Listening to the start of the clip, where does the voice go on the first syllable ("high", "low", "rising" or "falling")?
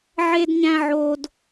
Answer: high